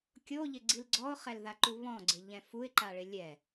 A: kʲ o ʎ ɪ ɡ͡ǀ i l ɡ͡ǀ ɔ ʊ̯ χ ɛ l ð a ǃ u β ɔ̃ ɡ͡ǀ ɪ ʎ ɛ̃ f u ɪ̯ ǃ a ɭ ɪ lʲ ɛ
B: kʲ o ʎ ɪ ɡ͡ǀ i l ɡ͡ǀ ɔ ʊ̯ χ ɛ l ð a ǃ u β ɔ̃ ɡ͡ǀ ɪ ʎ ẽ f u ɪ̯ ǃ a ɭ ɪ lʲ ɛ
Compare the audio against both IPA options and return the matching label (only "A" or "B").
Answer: A